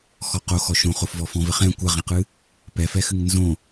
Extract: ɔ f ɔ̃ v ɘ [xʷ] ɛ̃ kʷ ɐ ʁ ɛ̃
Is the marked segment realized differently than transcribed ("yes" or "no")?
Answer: yes